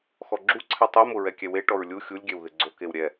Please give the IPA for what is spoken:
x ɔ ɡ͡ǁ u ǀʰ ɛ tˤ i m ʊ ɹ ɛ kʲ ɛ w e ʈ ɔ ɹ lʲ u xʲ u lʲ ɡʲ ɛ w ð ɪ ɡ͡ǀ o k e w ɾʲ ɛ

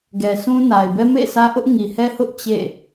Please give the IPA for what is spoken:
ɡ ɛ˨ s ũ˦ n a˨ ɪ̯ b ɛ˦ m ḛ˦˨ sʰ ä˦ ʔ ʊ˦ ʔ ŋ i˨ h ɛ˦ h ʊ˦ ʔ t͡ɕ ḛ˦˨

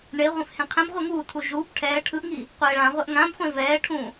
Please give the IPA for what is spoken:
ɳ e ʁʷ ẽ f h ẽ qʰ ɛ̃ b ʁʷ e ŋ uː tʰ u ʒ uː b ʈʰ ɛː ʈʰ ɯ ʔ ŋ iː | qʷ ɛː ɭ ã ʁʷ ɛ ʔ ŋ ã b χʷ ẽ v ɛː ʈʰ ũː

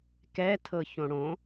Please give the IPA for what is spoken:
k ɛ tʰ ɤ ç õ ɽ õ

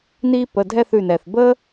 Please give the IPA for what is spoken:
n i˥ p ə˩˧˩ dʱ ɛ˥˧ θ ʉ˧˩ n ɛ˩ θ b ə˥

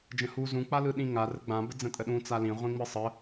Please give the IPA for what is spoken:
d͡ʒ ə̃ h u z ũ k͡p a l ɯ ɗ ĩ ŋ a r ə ɡ͡b ã b ə d͡z ə̃ tʼ ə ɗ ũ t͡s a l ĩ ʁʷ ĩ ŋ͡m ɯ sˤ ə

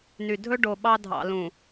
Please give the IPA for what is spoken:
n y˨ dʱ ɵ˦ ɖ o˨ ɓ ɑ˦ dʱ ɑ̰˨ l ũ˨

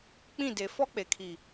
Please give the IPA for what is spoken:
k͡p ĩ˦˨ d e˨ f ɔ˦ k͡p e˨ kʰ i˨

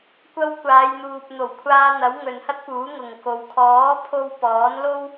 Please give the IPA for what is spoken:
kʷ ɐ˧ w kʷ aː˨˧ j n̪ uː˨ p̚ n̪ o˨˩ w kʷʰ aː˧ n̪ ɐ˨˥ w ŋ ɵ˨ n h ɐ˥ t̚ p uː˨˥ ŋ ʊ˨ ŋ k o˨ w kʰ ɔː˨˥ pʰ o˧ w p ɔː˨˥ n l o˥ w

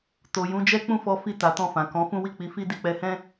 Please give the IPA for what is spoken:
t o˨ j ũ˨˦ d͡ʒ ɛ˦ k͡p ũ˦˨ f ɔ˧ f i˧ t a˨ t ɔ̃˧ f ã˨ k ɔ̃˨˦ f ũ˦ w i˦˨ k͡p i˨˦ f i˦ d i˧ k͡p ɛ˧ h ɛ̃˦

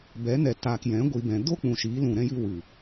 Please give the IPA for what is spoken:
b ɛ˨˦ n ɛ˨ t aː˨ k j ɛ̃˨˦ ɡʷ i˨ b ɛ̃˨ d o˦ k͡p ũ˨ ʃ iː˨˦ l ũ˨ ɾ ɛ̃˧ j ɨ˧ w ɨ˨

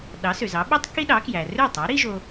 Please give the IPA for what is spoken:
ɗ ɑ˩˥ s ø˩ z ɑ˩˥ ɓ ø˥ tˤ k i˥ ɗ ɑ˩˥ k j æ˩ r ø˥˩ tˤ ɑ˩˥ ɾ i˥ ʒ o˧

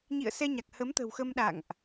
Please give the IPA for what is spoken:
ɲ ḭ˧˨ ə̯ s ɛ˧ ɲ a˨˩ k̚ h ə˨˦ m t̪ ə̤˨˩ w x ə˧ m ɗ a̰˧˨ ŋ ʔ

